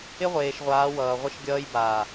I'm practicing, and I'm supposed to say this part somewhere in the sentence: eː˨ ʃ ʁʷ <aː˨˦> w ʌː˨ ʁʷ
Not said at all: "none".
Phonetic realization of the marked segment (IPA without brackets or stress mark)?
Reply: aː˨˦